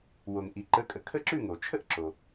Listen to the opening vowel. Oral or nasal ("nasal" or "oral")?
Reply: oral